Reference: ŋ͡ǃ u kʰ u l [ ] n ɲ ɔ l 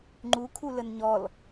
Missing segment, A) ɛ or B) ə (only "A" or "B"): B